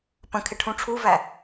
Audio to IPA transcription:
pə̃kʰɪ ʈʰũʈ͡ʂʰuvæ

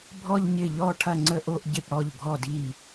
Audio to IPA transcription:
bʱɔ˥˧ʎɲɪ˥˩ʎɔ˥˧ ʈʰɐ˥˧ŋ͡ǀə˥˧ʔo˥˧ʔɟɪ˥˩p ɽɔ˥˩ʎɡʱɔ˥˩di˥˩

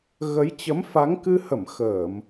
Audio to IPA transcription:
ɣə˨˦j t͡ɕə˨˦mfa˨˦ŋkɨ˧hə˧˩m xəː˧˩˨m

